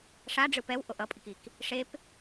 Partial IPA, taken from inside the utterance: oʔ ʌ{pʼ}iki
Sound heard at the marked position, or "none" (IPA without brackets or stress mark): pʼ